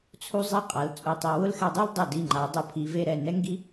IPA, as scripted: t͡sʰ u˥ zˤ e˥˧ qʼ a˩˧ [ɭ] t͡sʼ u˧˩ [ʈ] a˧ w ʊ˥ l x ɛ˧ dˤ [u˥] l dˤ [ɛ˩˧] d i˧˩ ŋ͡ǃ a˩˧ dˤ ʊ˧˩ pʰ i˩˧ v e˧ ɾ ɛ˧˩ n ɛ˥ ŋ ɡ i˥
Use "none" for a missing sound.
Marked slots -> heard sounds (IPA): l, tˤ, u˥, ɛ˧˩

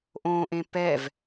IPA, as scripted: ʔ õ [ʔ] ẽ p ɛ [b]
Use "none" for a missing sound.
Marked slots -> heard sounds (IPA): ʔ, v

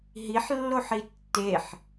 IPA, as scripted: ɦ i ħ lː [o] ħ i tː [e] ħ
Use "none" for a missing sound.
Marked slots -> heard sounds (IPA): o, e

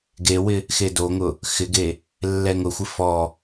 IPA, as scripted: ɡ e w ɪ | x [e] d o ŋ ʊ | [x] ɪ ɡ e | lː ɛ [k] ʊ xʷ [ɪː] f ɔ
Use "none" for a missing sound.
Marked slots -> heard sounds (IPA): e, x, ŋ, ɪ

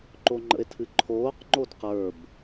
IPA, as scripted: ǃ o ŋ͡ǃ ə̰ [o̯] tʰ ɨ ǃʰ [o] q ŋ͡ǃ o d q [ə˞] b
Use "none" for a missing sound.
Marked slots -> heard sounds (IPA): e̯, oː, ə˞

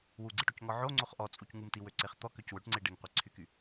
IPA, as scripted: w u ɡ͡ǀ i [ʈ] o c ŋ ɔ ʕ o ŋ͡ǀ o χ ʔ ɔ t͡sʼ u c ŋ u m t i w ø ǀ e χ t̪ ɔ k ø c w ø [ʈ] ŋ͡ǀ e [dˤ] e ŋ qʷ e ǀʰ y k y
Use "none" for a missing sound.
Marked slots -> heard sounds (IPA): ʈ, ʈ, ɖ

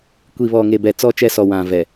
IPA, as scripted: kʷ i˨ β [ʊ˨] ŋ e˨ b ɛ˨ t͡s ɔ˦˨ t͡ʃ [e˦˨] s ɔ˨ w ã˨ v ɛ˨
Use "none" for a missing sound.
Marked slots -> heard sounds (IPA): ɔ˨, ɛ˦˨

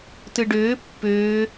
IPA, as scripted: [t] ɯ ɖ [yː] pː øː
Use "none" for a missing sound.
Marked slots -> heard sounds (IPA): t, øː

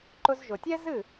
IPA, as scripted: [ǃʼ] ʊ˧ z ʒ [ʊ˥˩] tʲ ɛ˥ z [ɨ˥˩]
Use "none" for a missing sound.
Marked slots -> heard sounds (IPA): ǃ, ʊ˩, ɨ˥˩

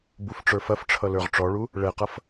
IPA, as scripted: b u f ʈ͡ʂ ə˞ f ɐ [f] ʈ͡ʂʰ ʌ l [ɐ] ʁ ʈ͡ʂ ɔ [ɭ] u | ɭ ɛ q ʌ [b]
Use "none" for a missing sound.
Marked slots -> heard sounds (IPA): f, ə˞, ɭ, f

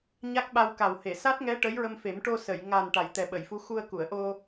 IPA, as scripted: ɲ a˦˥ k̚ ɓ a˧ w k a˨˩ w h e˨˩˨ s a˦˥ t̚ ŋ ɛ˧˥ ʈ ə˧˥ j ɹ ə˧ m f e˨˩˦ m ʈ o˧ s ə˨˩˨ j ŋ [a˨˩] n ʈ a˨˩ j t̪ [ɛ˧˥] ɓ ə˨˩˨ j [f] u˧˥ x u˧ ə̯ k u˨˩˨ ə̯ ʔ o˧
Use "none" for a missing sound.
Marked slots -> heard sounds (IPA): a˨˩, ɛ˨˩, f

